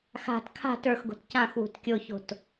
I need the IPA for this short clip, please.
x a̤ t kʰ a̤ t ə˞ x ɡ o̤ t c ã x w ṳ t kʲ o ç o̤ t

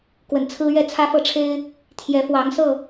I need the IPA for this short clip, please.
k w ə˨˩ n t͡sʰ ɹ̩˦ ɥ ɛ˥˨ t͡sʰ ä˦ f ɤ˥˨ ʈ͡ʂʰ e˦ ɪ̯ | t̪ʰ j ɛ˨˦ f w ɑ˨˦ ŋ s ɤ˥˨

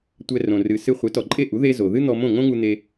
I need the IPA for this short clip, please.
tʷ ɛ˧ r õ˩ r ɨ˩ s ɨ˧ χʷ e˩˥ t ɔ˩ ǃʼ e˥˩ ʔ u˩˥ ð e˥ z o˩ ð ɨ˥ n̪ ɔ˧ m õ˥˩ ŋ õ˥ ŋ u˧ n̪ e˧

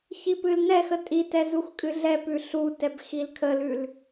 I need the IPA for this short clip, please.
ç i p ɨ l n ɛ x ə tʼ i t ɛ z u x kʼ ɨ ɮ ɛ p ʉ ɬ u t ɛ b x i l kʰ ə l ʉ l

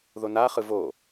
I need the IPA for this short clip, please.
ð o n a χ ɯ v o

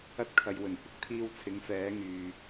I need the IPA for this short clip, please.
ɐ˧ t̚ kʰ ɐ˨ j w ɵ˨˩ n kʷ ɪ˨ k̚ t̪ʰ iː˧ w t͡sʰ ɪ˨˥ ŋ f ɛː˨˥ ŋ yː˨

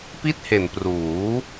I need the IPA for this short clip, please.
p i˥˩ t̚ h e˨˩ n p r uː˩˦

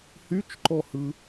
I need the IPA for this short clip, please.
h y t͡ʃ ǃ ɔ h ɯ

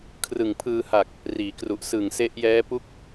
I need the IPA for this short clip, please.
kʰ r ɯ˨˩ ŋ pʰ ɯː˧ h a˨˩ k̚ | r iː˩˦ k r u˨˩ ʔ s ɯ˨˩ ŋ s e˦˥ ʔ j ɛː˦˥ p u˦˥ k̚

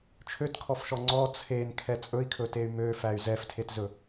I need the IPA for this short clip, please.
t͡ʃʰ ø t kʰ ɔ f ʃ ɔ ŋ͡ǀ ɔ t͡sʰ e n kʰ ɛ t͡sʼ ɵ i̯ kʰ ɵ t e y̯ m ø f æ y̯ z ɛ f tʰ e t z ɵ

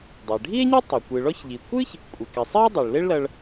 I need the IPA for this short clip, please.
dˤ e˩ ɖʱ i˥ e̯ ɲ e˥ tˤ e˩ kʷ ɨ˩ ɭ ɔ˥ ç ʎ i˩ kʷ ɨ˥ ç | kʷʼ ɪ˩ k ɪ˩ sˤ i˥ o̯ dˤ o˩ ɭ l e˥ ɭ l ɐ˧ ɭ

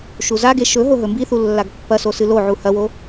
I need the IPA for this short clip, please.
ʃ u z a ɡ e ʃ ɵ ɦ o ɦ ɵ m b i θ u lː a ɡ pː ɐ s o s ɨ l o ʕ u h ɐ w o

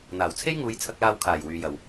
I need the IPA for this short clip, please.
n̪ aː˨˩ w t͡sʰ e˥ j ŋ uː˨˧ j t͡sʰ ɐ˧ k̚ l aː˧ w kʰ aː˨˩ j w yː˨ j ɐ˨ w

